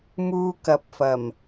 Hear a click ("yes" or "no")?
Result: no